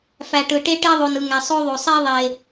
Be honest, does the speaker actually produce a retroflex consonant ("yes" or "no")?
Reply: yes